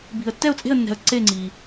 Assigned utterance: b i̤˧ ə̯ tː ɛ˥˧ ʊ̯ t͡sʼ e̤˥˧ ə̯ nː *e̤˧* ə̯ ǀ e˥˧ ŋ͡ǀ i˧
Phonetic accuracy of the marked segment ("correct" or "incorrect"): incorrect